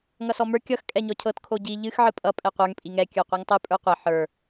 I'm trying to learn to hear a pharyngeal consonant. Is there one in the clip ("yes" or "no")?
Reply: yes